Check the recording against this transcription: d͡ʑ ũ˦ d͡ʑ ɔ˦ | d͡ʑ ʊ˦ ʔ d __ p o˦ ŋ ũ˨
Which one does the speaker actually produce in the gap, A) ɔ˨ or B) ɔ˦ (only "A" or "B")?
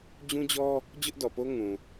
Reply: A